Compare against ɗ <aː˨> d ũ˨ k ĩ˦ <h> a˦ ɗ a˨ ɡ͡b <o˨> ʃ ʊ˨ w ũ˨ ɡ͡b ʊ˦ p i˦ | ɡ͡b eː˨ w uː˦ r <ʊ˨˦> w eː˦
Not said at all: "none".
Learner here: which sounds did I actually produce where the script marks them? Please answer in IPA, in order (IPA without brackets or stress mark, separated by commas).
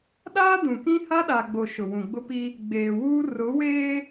aː˦, h, o˨, ʊ˨˦